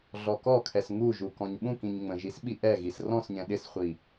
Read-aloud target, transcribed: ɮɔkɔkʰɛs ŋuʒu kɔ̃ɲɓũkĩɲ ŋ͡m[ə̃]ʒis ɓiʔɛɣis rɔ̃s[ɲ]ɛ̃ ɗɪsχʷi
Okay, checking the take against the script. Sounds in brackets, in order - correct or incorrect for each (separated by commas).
correct, correct